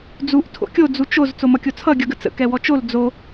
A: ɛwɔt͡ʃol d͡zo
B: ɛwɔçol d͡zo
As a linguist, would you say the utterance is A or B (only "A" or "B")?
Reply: A